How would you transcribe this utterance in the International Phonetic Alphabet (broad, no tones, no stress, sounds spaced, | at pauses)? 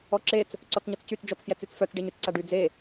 ɔ ǁ e t͡s | ǀ ɔ t͡s ɲ ɔ t͡s c y t͡s d͡ʒ ɔ t͡s f j ɛ t͡s y t͡s f œ t͡s ɖ e ɲ y t͡s ǀ a ɖ y d͡z e